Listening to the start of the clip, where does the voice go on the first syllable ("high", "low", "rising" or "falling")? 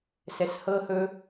low